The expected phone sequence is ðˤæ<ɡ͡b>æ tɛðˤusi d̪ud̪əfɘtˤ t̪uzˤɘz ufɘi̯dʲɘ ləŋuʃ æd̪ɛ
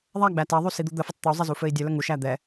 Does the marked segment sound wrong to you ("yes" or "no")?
no